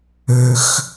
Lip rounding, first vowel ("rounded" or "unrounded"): rounded